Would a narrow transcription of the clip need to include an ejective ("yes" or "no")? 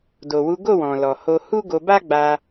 no